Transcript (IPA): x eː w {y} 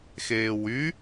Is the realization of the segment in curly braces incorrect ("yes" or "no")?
no